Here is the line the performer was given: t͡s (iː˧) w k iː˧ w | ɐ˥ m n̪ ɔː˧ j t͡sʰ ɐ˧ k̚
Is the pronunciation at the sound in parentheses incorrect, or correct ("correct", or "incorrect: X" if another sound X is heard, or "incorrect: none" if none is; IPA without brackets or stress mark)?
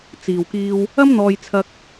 incorrect: iː˨